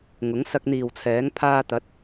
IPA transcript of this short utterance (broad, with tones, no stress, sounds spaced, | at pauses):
ŋ ʊ˨˥ ŋ s ɐ˧ k̚ n̪ iː˨ w t͡sʰ ɛː˨˥ ŋ pʰ aː˧ t̪ ɐ˨˥ t̚